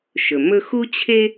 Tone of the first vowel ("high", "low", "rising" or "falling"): low